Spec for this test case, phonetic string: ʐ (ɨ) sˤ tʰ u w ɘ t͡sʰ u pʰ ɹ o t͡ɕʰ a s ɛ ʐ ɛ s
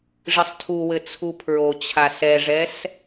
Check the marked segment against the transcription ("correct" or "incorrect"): correct